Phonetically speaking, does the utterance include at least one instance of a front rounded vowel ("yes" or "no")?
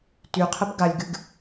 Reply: yes